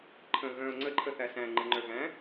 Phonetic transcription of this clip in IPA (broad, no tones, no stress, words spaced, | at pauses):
ǃʰə̃ ɣœ̃ʊ̯ ŋ͡ǀəǃʰəθæ sæ̃ŋ͡ǃɨŋ͡ǃœ ɣæ̃